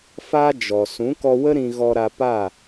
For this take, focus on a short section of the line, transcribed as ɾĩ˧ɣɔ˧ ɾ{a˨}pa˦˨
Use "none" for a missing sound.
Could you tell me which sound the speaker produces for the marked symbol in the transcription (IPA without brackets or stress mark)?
a˧